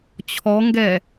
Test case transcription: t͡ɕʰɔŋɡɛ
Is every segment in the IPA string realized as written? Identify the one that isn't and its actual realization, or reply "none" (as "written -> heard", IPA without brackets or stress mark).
none